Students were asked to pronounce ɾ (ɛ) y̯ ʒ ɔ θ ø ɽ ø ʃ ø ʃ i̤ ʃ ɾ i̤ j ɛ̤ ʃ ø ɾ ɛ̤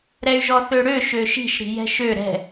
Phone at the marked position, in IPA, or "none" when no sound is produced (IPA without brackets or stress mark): ɛ